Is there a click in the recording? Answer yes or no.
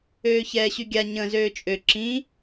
yes